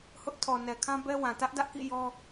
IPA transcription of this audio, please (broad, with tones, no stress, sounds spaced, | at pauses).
h ʊ˦ ʔ tʰ ɔ˨ n ɛ˨ kʰ ã˦ b ɛ˦ w ã˨ t ä˦ ʔ d ä˦ ʔ k ḭ˦˨ j ɔ˦